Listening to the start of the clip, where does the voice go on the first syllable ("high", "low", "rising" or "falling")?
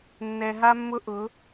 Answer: low